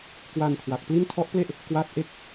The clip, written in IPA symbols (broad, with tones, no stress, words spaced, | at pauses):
kwa˧n kʰwa˨˩k̚pli˥˩n tʰɔ˦˥ʔple˥˩ʔ | kwa˦˥t̚ʔe˦˥k̚